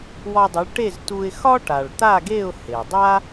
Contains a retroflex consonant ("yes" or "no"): yes